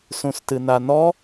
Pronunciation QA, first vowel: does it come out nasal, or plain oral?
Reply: nasal